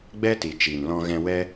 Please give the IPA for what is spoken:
ɡ͡b ɛ˦ t i˨ t͡ʃ i˨ n l ɔ̃˧ ɣ ɛ̃˧ w ɛ˦

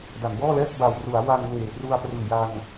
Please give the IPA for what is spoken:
d a˩˦ n b ɔː˥˩ l ɛː˥˩ k̚ b a˨˩ w r u˩˦ a̯ w a˧ ŋ w eː˨˩ p r u˧ a̯ p r ɯː˨˩ j a˧ ŋ

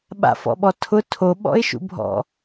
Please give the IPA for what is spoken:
ɓ a̰ f ɔ̰ ɓ ɔ tʰ ʊ tʰ o ɓ ɔ̰ ɪ̯ ʃ ṵ bʱ ɔ̰

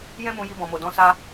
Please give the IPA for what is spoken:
j ɛ̃˦ m ũ˧ j i˧ b ɔ̃˨ m o˨ d ɔ̃˧ s a˧

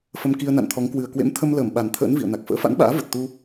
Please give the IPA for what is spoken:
f ə˧ m k i˧ ə̯ n a̰˧˨ n t̪ʰ ɔ˨˦ ŋ k w ɨ˨˩ ə̯ k w ḛ˧˥ m t̪ʰ ə˧ m l əː˧˩ m ɓ a˨˩ n t̪ʰ ə̰ː˧˥ n v ḭ˧˨ ə̯ n a˨˩ k̚ f ə̰ː˧˥ f a̰˧˥ n ɓ a̰ː˧˥ v ə˨˩ t̚ t̪ u˧

